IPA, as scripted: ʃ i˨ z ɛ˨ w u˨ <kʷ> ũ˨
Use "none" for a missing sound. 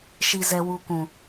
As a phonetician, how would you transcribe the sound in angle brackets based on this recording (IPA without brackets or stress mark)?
kʷ